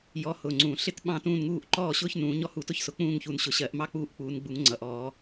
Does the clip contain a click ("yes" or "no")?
yes